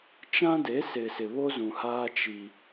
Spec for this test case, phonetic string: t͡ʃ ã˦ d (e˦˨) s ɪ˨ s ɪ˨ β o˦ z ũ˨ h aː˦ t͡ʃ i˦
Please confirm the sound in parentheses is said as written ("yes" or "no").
no